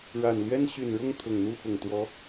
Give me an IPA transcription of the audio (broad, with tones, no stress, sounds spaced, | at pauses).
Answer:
ɻ a˨˩ n l ɥ ɛ˥ n ɕ y˨˩ n ɻ ʊ˥˩ ŋ t̪ʰ ʊ˨˩ ŋ n̪ u˥˩ x ʊ˨˩ ŋ t̪ w ɔ˧˥